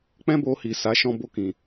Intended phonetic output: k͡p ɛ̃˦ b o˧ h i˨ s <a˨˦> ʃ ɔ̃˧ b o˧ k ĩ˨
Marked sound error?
no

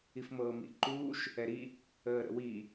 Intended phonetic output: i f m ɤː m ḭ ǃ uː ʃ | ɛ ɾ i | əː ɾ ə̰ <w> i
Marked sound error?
no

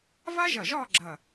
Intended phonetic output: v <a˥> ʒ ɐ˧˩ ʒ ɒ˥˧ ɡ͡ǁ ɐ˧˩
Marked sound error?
no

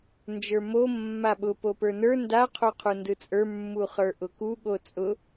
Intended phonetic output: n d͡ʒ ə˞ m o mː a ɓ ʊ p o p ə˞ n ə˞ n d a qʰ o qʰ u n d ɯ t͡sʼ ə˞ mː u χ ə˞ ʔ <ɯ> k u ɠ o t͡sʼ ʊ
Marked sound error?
yes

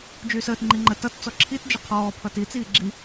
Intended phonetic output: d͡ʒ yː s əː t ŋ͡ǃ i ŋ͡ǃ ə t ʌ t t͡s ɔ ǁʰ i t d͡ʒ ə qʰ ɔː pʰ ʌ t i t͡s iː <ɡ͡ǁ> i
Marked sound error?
no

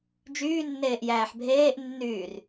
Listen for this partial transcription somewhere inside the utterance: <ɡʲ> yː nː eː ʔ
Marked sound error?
yes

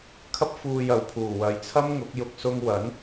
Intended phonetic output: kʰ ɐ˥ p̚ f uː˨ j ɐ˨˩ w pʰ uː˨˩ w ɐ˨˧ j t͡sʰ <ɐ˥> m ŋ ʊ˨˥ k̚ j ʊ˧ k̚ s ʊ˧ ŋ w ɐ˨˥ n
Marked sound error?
no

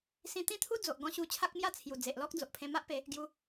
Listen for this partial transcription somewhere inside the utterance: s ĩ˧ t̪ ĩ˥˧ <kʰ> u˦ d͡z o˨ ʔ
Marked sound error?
yes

